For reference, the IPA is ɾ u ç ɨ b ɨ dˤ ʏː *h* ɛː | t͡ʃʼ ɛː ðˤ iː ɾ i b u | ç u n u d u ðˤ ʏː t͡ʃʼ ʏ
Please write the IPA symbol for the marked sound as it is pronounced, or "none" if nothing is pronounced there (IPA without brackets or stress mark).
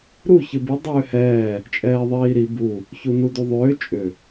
h